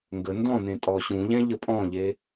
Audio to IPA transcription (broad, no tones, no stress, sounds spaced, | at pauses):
ŋ ɡ ə n d ɔ̃ n ẽ tʼ ɔ ɕ ũ ʎ ɛ̃ ʎ ə pʼ ɔ̃ ʎ e